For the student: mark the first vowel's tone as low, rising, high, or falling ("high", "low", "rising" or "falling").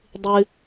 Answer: high